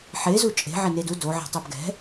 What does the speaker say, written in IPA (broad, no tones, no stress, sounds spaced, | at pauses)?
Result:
ħ e z u t͡ʃʼ e̤ ʕ e n e d u d o ʕ ɛ̤ tˤ u b ɡ ɛ̤